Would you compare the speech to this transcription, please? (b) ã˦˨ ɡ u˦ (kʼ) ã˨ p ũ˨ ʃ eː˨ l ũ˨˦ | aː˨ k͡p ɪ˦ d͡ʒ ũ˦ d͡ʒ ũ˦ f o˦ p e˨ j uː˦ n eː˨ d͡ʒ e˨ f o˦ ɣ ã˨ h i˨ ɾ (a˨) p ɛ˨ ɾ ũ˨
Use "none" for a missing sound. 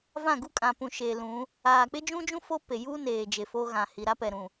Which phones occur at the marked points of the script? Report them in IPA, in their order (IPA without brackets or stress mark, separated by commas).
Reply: v, kʼ, a˦